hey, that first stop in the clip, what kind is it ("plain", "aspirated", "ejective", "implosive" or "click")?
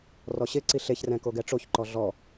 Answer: click